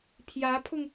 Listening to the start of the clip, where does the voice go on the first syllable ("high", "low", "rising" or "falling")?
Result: rising